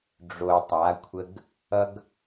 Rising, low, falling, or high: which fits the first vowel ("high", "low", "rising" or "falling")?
low